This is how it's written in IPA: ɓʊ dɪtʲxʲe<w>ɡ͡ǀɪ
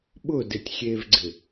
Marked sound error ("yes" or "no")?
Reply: yes